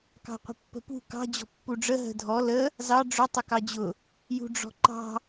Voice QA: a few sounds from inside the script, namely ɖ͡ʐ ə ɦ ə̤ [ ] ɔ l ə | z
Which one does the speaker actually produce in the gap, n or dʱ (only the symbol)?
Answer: dʱ